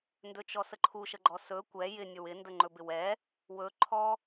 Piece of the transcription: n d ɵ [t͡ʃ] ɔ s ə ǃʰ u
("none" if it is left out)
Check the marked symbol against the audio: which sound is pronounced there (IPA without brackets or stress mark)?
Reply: t͡ʃ